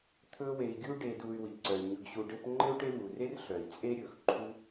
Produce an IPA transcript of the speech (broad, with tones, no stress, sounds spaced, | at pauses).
t̪ʰ ɵ˦ w e˨ i̯ ɡʲ u˥ ɖ e˨ d u˨ y̯ w i˩ ǀ œ˩ y̯ ɲ ɵ˨ ɡ ɕ u˨ ɖ ɘ˦ p ŋ͡ǃ ɘ˥ u̯ ʈ e˦ v u˩ r e˥ r ɬ œ˩ i̯ t͡sʼ e˦ ɾʲ ɵ˩ x ǃʰ u˦